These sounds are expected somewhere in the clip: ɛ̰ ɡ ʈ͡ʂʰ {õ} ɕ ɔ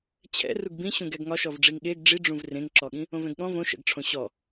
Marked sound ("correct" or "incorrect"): correct